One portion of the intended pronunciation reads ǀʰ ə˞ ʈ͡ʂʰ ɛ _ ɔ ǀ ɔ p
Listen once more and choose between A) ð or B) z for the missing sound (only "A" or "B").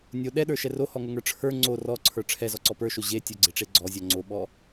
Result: B